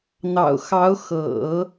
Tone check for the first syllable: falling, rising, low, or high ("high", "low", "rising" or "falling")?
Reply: low